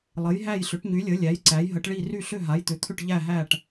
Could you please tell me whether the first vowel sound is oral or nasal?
oral